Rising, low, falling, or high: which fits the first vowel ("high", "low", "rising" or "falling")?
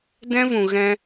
high